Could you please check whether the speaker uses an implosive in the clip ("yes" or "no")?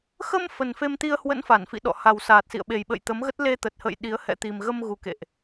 yes